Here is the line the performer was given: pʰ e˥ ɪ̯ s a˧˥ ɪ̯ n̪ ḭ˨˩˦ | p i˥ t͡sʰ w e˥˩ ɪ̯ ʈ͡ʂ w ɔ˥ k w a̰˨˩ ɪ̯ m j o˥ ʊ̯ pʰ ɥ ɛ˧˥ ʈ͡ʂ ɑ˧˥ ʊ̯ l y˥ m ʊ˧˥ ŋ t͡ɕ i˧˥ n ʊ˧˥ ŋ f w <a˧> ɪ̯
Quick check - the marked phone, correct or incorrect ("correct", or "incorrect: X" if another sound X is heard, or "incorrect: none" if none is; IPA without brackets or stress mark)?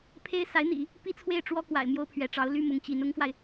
correct